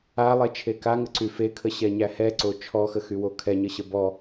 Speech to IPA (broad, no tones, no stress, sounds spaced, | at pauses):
a lˠ e t͡ʃʰ e k a ŋ ə ǀ y f e kʰ ə ɕ ɛ ɲ æ h ɛ ǀ o t͡ʃʰ ɔ x ə x y w o kʰ ɛ ɲ ə ɕ ə b ɔ